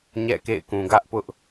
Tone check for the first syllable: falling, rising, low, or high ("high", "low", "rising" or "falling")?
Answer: falling